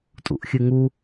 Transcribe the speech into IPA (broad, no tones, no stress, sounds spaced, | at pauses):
tʼ ṵ ʔ xʲ ɨ ŋ u